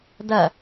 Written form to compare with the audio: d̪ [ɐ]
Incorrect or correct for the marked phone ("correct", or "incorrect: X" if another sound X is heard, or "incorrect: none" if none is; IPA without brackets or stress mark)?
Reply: correct